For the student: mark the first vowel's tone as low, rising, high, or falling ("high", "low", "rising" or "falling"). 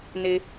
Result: low